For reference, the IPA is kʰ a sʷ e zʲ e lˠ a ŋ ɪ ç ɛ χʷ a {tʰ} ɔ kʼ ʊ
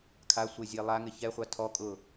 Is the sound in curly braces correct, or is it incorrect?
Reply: correct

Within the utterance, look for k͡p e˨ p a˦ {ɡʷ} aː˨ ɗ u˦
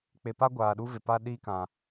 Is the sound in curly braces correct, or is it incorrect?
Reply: correct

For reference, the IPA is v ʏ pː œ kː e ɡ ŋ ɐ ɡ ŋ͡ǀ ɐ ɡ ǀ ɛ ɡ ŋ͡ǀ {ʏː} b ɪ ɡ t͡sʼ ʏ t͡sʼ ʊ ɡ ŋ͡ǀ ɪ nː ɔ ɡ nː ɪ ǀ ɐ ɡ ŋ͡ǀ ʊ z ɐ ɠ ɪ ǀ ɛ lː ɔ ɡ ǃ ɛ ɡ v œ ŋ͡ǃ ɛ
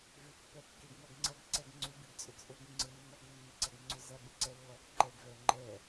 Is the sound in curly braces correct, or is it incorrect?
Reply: incorrect: ʏ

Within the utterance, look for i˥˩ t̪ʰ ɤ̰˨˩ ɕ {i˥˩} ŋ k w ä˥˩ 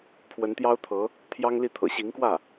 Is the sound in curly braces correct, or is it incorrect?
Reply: incorrect: i˧˥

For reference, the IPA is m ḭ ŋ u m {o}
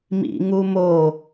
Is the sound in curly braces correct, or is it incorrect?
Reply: correct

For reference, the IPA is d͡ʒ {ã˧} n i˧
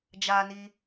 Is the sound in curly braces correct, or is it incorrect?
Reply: incorrect: a˧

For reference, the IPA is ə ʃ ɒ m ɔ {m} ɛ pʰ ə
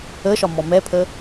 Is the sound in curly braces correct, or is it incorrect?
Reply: correct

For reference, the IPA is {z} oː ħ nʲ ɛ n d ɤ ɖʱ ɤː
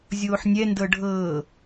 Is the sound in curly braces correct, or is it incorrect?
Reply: incorrect: zʲ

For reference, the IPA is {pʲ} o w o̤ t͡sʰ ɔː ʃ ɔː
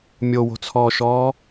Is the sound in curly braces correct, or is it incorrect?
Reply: incorrect: mʲ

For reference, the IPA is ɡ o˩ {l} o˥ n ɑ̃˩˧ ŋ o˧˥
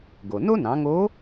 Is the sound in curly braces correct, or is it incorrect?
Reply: incorrect: n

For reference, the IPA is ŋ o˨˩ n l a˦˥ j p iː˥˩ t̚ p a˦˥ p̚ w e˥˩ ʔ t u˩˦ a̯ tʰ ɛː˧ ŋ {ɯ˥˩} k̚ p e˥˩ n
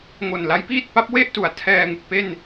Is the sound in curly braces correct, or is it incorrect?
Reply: incorrect: ɯ˨˩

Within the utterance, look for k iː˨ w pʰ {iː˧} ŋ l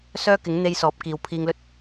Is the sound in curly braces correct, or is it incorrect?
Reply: correct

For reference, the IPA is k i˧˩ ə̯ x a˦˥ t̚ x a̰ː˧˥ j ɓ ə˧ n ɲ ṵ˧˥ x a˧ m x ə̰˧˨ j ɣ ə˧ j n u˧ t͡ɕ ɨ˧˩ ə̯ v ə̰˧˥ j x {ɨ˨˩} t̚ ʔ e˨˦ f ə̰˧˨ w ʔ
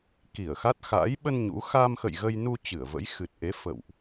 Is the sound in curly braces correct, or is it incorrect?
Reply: correct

